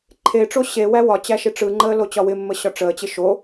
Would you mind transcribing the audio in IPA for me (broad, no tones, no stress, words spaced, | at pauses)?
ǃʰeʈ͡ʂo ɕewæ wɒt͡ɕæ ʃɪʈ͡ʂɯŋ͡ǃəː lot͡ɕɒwɪmːə ɕɒʈ͡ʂəːt͡ɕɪ ʃo